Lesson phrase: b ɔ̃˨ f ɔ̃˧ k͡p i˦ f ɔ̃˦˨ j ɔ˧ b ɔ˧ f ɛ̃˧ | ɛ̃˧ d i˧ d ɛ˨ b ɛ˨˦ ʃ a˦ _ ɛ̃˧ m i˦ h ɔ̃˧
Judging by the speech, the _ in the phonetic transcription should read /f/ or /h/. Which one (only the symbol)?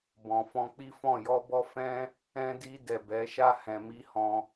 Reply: h